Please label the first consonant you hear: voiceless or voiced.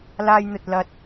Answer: voiced